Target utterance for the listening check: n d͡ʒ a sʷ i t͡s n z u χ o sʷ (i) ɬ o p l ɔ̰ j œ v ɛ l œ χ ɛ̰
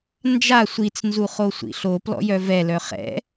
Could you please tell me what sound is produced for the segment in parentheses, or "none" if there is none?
ḭ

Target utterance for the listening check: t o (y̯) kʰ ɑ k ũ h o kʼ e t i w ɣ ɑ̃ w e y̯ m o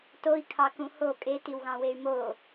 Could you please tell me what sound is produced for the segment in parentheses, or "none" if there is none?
i̯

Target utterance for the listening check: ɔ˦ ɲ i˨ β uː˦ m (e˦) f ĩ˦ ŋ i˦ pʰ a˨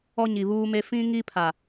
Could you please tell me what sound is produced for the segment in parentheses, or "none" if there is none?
e˦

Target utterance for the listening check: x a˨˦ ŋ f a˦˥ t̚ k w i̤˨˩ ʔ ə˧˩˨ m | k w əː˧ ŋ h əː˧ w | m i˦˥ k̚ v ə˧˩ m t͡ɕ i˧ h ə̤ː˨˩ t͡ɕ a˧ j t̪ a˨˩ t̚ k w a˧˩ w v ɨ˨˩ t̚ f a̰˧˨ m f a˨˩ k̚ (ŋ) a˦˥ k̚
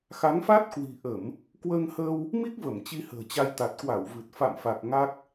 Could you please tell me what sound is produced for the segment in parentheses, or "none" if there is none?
ŋ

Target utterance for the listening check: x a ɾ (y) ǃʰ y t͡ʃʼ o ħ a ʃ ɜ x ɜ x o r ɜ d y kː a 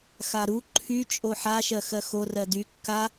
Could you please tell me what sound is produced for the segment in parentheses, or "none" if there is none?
u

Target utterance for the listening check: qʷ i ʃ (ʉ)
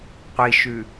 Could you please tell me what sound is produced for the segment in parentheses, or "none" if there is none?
ʉ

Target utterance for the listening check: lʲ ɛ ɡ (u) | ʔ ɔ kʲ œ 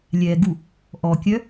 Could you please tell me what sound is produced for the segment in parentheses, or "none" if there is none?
u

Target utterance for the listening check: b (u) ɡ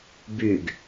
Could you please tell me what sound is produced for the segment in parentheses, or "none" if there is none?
y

